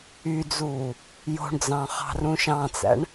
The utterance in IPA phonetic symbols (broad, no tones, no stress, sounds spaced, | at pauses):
y d͡z uː | j o̤ ɳ d͡z ɑ̃ χ ɑ̤ r ũ ʃ ɑ̃ t͡s æ̰ ɳ